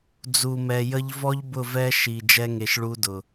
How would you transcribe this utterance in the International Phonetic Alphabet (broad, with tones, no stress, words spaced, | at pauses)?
d͡zu˨mɛ˨jə˧ʎvɔ˦ʎ bʊ˦˨vɛ˦ʃi˨ d͡ʒɛ˧ŋe˨ʃ ɭu˧dʊ˨